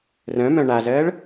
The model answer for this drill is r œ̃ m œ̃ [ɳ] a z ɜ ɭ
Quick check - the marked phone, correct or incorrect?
correct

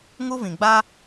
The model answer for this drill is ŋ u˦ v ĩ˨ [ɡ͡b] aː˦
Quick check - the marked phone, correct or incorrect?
correct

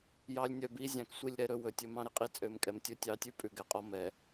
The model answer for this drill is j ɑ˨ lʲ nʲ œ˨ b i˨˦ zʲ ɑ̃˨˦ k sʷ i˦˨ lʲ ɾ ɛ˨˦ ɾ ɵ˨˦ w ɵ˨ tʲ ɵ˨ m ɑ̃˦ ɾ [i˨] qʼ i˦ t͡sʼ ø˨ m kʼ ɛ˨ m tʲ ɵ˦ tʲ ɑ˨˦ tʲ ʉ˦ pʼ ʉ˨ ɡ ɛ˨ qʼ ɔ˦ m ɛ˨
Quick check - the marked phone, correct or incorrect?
incorrect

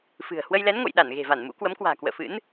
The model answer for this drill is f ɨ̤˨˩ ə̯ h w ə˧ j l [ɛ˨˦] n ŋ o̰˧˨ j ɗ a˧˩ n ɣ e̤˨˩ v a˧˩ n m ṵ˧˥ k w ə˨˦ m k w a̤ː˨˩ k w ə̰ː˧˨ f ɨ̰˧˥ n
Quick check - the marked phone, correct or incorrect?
correct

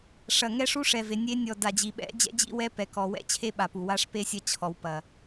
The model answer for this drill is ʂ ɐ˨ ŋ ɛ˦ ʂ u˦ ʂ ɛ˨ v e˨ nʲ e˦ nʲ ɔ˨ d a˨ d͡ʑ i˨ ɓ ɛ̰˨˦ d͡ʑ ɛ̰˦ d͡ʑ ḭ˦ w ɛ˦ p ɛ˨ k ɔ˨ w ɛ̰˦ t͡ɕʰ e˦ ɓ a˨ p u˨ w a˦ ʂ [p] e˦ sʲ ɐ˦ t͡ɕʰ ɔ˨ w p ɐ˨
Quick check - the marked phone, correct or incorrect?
correct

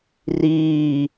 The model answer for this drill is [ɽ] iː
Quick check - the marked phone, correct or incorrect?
incorrect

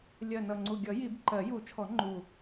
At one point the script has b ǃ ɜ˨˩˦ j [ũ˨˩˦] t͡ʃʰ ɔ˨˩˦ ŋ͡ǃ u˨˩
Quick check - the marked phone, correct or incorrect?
incorrect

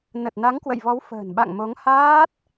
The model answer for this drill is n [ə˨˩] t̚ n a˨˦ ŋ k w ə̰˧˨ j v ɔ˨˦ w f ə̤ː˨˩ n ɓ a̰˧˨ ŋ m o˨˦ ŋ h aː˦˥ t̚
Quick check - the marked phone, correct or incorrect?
correct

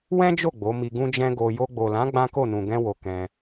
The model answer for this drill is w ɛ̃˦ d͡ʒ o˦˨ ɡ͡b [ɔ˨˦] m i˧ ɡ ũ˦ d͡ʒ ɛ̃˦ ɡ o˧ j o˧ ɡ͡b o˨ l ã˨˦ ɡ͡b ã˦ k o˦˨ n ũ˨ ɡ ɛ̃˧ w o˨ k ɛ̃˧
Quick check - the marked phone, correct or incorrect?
incorrect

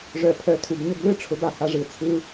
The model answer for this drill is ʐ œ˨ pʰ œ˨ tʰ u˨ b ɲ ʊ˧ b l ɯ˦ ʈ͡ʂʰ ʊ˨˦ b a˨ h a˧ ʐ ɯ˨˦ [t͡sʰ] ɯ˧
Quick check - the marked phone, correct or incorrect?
correct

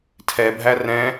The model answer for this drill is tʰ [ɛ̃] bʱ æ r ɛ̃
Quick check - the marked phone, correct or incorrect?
incorrect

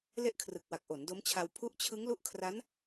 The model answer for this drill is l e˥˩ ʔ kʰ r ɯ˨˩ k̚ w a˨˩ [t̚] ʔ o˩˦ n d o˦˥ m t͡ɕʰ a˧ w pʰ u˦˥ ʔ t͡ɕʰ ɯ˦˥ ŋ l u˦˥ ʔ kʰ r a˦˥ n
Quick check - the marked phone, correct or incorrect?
incorrect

